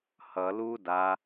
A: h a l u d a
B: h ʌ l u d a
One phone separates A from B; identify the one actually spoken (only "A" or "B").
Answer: B